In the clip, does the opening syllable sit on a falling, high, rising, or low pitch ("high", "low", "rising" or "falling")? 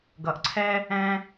low